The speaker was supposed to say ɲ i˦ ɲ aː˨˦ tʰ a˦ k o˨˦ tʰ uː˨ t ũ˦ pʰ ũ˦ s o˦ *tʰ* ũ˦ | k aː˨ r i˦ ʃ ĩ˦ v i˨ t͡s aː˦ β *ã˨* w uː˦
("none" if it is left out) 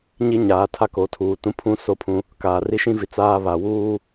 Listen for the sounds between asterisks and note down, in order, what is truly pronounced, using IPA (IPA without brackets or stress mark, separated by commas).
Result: pʰ, a˨